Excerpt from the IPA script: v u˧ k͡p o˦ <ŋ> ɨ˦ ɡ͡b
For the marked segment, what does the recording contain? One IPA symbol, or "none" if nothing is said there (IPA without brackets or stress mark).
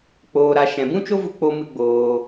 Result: m